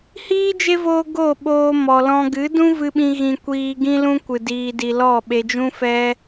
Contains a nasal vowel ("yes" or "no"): yes